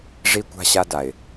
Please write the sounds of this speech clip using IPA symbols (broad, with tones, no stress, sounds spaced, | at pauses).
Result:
ʐ i˦ kʷ a̤˦ ɕ a˦ d a˨ ɪ̯